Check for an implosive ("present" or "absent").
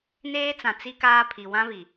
absent